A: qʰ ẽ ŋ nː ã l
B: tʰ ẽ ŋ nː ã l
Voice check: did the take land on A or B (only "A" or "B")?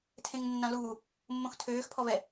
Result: B